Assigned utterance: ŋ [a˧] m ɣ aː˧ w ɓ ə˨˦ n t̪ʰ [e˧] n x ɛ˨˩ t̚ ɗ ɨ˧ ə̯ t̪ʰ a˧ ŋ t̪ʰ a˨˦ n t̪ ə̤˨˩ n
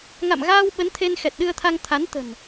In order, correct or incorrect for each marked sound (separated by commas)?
incorrect, correct